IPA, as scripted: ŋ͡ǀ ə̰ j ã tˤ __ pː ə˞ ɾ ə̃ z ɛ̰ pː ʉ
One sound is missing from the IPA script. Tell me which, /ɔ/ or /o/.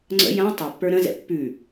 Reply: o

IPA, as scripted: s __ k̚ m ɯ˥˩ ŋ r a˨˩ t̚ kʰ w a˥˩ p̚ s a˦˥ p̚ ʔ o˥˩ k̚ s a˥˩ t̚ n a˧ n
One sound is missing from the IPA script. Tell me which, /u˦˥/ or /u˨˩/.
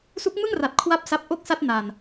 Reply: u˦˥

